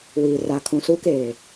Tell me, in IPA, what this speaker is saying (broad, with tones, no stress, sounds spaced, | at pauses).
w iː˨ r a˨ kʰ ũ˨ s u˦ k eː˨